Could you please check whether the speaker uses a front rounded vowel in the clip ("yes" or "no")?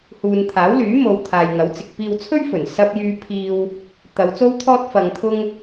yes